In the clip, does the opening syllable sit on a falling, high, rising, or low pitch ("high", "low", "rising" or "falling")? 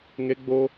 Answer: high